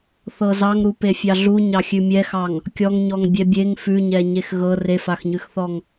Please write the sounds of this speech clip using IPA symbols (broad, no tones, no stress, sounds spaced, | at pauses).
θ ɤ z ɑ ŋ ɾ u p e fʲ ɑ ɮ u ɲ ɑ xʲ ʉ mʲ ɛ x ɑ ŋ | kʲ ɔ ŋ ɲ ɔ ŋ bʲ ɛ bʲ e ŋ f ʉ ɲ ɛ ɲ e x ɣ ɤ r e f a x ɲ ʉ x θ ɔ ŋ